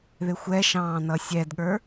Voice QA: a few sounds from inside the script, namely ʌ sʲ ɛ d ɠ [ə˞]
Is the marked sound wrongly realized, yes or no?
no